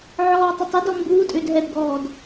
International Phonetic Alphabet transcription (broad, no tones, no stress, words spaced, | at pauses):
ʕɔːtˤətˤɪ dɔmbuː tʼʏːdɦɛdɡɔːd